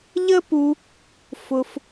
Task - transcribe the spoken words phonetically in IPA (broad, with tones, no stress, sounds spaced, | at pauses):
ʎ ə˦ p u˧ | f ʊ˧ f